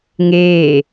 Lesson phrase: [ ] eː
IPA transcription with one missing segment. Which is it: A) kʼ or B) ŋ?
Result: B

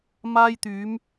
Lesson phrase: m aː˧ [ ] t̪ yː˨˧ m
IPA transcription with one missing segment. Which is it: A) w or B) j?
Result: B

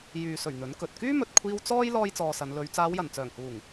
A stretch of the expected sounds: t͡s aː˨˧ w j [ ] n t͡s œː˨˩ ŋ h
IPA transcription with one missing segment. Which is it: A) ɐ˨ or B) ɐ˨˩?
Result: B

